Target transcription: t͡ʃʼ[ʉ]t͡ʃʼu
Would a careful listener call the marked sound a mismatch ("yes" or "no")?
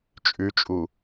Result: no